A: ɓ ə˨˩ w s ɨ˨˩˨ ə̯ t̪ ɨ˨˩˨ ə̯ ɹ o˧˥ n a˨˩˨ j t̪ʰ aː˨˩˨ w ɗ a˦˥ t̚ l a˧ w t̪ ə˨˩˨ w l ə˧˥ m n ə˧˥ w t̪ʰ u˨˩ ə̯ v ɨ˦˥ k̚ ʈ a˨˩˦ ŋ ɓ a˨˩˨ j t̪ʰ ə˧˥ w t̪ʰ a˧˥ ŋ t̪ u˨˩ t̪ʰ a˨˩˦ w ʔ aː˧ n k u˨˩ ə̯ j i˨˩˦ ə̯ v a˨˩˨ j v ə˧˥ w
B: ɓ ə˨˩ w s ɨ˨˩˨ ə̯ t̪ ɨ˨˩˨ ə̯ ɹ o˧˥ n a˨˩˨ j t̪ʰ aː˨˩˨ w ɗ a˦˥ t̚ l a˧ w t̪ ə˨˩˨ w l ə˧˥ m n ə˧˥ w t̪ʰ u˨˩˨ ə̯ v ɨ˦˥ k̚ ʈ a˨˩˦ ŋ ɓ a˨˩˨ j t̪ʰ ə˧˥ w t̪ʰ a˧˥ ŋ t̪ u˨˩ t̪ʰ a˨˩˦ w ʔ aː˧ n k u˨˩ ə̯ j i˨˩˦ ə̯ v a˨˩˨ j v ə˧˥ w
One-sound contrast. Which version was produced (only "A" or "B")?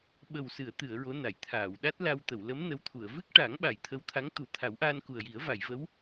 B